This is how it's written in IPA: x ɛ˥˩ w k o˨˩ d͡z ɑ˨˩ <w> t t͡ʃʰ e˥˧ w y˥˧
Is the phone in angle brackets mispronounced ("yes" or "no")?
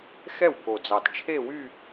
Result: yes